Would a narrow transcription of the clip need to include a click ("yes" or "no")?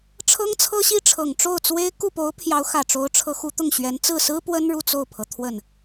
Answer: no